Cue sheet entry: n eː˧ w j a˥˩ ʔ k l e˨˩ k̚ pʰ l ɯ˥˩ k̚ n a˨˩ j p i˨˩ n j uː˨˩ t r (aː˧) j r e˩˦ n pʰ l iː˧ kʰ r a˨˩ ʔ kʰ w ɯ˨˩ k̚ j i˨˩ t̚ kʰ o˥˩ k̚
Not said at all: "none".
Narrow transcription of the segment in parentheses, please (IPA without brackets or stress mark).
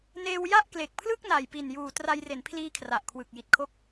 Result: a˧